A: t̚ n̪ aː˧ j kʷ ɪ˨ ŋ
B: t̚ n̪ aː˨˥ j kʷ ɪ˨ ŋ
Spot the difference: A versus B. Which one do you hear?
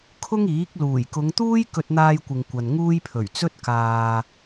A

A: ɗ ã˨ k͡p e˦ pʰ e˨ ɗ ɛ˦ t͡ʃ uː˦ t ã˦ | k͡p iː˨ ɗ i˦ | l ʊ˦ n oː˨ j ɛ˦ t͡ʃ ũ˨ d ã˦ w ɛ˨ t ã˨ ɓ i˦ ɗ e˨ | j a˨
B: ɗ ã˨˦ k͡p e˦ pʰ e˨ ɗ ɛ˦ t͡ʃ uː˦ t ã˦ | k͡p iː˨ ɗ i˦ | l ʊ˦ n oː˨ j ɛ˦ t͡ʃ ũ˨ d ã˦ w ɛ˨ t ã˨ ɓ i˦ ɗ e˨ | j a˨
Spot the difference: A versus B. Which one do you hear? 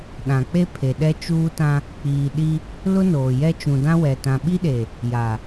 A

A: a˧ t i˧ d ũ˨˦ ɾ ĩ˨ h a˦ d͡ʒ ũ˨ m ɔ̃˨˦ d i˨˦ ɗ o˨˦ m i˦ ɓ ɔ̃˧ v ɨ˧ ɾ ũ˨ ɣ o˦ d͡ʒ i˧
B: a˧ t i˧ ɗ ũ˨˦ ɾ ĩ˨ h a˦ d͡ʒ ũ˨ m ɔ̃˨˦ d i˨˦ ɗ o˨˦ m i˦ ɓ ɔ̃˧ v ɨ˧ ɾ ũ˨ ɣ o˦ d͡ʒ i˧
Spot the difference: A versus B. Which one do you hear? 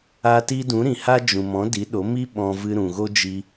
A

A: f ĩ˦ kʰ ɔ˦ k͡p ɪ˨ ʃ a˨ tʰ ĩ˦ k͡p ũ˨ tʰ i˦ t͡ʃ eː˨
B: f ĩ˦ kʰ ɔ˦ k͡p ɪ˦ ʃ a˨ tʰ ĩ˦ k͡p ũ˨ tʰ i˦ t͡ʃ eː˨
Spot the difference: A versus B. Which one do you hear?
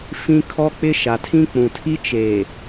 B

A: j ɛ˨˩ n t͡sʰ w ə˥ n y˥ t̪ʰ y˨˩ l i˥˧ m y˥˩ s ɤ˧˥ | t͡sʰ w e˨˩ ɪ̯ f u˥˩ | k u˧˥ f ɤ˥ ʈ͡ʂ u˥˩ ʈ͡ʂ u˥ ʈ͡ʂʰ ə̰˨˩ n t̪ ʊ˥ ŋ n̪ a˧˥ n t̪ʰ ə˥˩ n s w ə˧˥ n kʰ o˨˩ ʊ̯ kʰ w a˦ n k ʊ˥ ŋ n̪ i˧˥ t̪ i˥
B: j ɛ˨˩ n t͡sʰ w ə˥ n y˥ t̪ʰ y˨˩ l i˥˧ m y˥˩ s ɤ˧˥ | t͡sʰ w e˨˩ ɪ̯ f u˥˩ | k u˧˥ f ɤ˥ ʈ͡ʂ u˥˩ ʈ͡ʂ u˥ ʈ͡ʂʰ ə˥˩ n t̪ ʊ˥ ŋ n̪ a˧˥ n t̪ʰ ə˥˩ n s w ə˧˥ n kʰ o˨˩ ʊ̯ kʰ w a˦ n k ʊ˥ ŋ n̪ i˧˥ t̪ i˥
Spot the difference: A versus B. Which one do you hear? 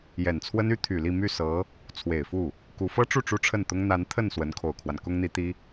B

